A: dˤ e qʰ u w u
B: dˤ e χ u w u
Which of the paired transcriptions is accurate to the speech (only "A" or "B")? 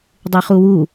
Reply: B